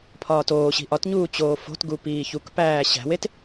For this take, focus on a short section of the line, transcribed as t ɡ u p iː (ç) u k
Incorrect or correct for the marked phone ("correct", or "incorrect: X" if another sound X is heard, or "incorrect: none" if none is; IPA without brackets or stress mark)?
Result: correct